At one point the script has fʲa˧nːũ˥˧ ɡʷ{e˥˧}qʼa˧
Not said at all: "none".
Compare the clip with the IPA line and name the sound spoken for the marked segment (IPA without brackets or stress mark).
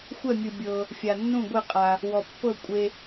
e˥˧